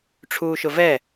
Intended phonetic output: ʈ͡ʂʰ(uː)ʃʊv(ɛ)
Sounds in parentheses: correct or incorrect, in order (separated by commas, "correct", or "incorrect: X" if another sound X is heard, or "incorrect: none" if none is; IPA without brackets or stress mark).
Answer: correct, correct